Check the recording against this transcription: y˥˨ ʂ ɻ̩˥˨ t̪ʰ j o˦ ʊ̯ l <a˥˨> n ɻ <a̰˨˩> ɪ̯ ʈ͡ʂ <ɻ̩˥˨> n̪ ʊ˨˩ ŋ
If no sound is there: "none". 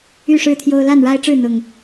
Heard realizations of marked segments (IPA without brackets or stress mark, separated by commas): a˥˨, a˦, ɻ̩˥˨